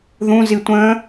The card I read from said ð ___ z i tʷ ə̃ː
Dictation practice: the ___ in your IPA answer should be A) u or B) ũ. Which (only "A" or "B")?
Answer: B